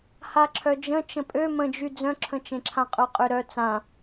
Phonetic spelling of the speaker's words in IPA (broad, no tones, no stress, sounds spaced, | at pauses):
h a ǁʰ œ d͡ʒ ə̃ t͡ʃ ə̃ pʼ ø m ə̃ d͡ʒ y d͡z œ̃ ǁʰ ə̃ t͡ʃ ẽ ǁʰ ã qʼ œ qʼ ø ɾ œ t͡s ã